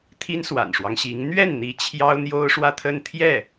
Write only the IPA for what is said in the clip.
t̪ʰ i˥ n s w a̰˨˩ n ʂ w ɑ˦ ŋ ɕ i˧˥ ŋ n̪ ɥ ɛ˥˩ n n̪ i˧˥ t͡ɕʰ j ɑ˥ ʊ̯ n̪ j o˥ ʊ̯ ʂ w ä˥˧ t̪ʰ ə˥˧ n t̪ʰ j ɛ˥˩

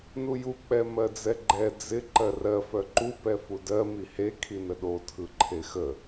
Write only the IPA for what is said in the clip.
n u j u k͡p ɛ m ɜ d͡z ɛ ɡ͡ǃ ɛ d͡z ɪ ǃ ɜ r ɜ f œ ǃ u p ɛ f u d ɜ m i h e kʰ i n ə ɗ o tʰ ɯ ǃʰ e x ə

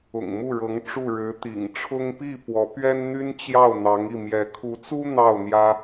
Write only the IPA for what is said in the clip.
ʊ̰˨˩ ŋ m u˥˩ ɻ ɤ˧˥ ŋ ʈ͡ʂ u˥˩ ɻ ɻ̩˧˥ t̪ ḭ˨˩ ŋ ʈ͡ʂʰ ʊ˥ ŋ p i˥˩ p w ɔ˧˥ p ɥ ɛ˥ n n̪ y˥ n t͡ɕ j ɑ˥˩ ʊ̯ n̪ ɑ˧˥ ŋ i˥˩ m j ɛ˧˥ kʰ u˧˥ t͡s u˥ n̪ ɑ˥˩ ʊ̯ n̪ j ä˥

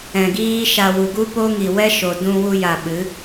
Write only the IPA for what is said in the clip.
ɛ̃˨ ɡ iː˦ ʃ a˧ w u˨ ɡ u˦ p o˦ ŋ i˨ w ɛ˦ ʃ o˨ d ũ˧ w u˧ j a˨ ɓ ɨ˨˦

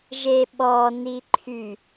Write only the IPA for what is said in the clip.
ʒ e ɓ ɔ n i ǃʰ y

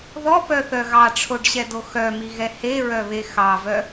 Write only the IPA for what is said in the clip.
ð ɔ p œ θ œ ɣ ɑ ʈ͡ʂʰ o ɖ ɕ ɛ d o x œ m i ɣ ɛ h e ɹ œ β e x ɑ v œ

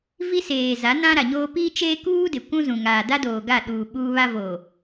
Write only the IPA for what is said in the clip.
v i˦ s eː˨ z a˨˦ n ã˦ ɾ a˨ ɲ oː˦ p iː˦ t͡ʃ eː˦ k uː˦ d ɪ˨ kʷ ũ˦ z ũ˨ ŋ aː˨ d a˦ d oː˨ ɡ a˦˨ ɗ uː˨ ɓ uː˦ β a˦ v oː˨

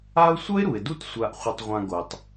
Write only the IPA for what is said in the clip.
a˦ ʊ̯ sʷ ʌ˥ ɪ̯ ɾ u˩ ɪ̯ d u˥ t sʷ a˨ ʔ χʷ e˨ tˤ ʁʷ ã˨ ɡ o˩ tˤ

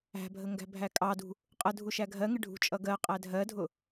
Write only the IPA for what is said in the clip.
æ̤ bʱ ə ŋ ɡ æ̤ bʱ æ kʼ ɑ d ṳ | qʼ ə dʱ u ʃ æ ɡʱ ɜ ŋ ɪ ɖʱ ṳ t͡ʃʼ ʌ ɡ ɜ qʼ æ dʱ ɜ dʱ ʊ

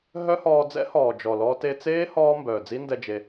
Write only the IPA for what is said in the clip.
ɦ œ˦ h ɔː˧ d͡z ɛ̰˦ h ɔː˨ d͡ʒ ɔ˨ l ɔː˧ t e˧ t͡s eː˦ h ɔː˧ m b œː˨ d͡z i˦ n d ɛ˧ d͡ʒ e˧

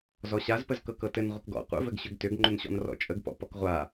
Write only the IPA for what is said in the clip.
z ɔ ɕ a z p ə z k ɤ k ɤ t ɘ n ʁʷ ə k ɡ ɔ̰ qʷ ə̰ v ɘ ɡ ɕ ʏ ɡ t ʏ ɡ ŋ͡ǃ ʏ n ɕ ɔ̰ n r ɔ̰ t͡ʃʼ ə ɡ p ɔ̰ p ɔ k ʁʷ a

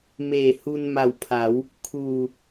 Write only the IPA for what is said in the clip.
m eː˨˩ h u˧ n m a˨˩ w pʰ a˩˦ w | kʰ uː˨˩

